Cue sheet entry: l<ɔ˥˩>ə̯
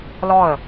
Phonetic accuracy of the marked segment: correct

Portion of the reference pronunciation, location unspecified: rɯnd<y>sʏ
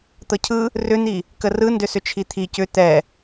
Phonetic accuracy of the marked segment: incorrect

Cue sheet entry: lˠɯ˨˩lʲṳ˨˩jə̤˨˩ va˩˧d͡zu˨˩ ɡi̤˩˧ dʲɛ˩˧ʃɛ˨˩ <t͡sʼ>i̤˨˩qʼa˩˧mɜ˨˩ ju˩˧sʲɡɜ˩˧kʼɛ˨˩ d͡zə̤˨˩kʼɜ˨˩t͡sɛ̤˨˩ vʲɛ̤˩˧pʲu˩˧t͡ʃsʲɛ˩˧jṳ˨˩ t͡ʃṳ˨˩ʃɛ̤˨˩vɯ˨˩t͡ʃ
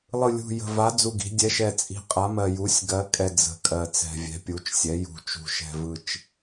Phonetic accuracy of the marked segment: correct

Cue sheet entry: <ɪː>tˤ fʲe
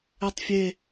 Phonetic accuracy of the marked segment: incorrect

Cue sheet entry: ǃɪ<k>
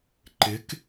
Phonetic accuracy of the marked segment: correct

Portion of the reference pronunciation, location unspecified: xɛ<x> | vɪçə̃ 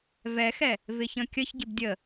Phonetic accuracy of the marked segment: incorrect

